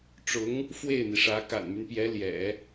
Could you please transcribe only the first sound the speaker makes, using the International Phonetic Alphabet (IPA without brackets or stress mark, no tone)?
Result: ʈ͡ʂ